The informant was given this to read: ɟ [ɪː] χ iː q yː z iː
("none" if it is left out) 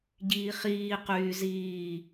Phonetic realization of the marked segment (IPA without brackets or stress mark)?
iː